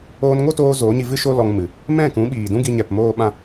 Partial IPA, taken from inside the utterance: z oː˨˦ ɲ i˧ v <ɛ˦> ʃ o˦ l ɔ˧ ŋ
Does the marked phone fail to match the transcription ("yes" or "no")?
yes